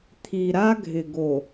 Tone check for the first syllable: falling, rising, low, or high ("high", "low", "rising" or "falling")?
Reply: low